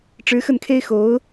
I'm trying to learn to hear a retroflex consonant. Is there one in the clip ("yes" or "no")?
yes